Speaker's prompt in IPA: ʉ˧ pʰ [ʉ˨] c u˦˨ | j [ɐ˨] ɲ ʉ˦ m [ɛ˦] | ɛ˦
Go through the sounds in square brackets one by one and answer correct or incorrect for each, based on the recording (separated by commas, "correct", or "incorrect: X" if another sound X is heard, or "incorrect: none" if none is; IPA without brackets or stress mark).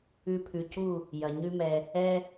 correct, correct, incorrect: ɛ˧